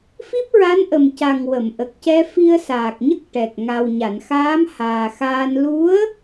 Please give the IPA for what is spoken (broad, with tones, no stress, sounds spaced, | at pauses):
f i˦˥ p̚ ɹ a˧˥ n ʔ ə˨˩ m c a˨˩ ŋ w ə˨˩˨ m ʔ ə˨˩ k̚ c ɛ˧ f i˧ ə̯ s aː˨˩ k̚ ɲ ə˦˥ k̚ ʈ ɛ˨˩ k̚ ŋ a˨˩ w ɲ a˨˩˨ n x aː˧˥ m h aː˨˩ x aː˧ n l u˧˥ ə̯